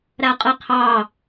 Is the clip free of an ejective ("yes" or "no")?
no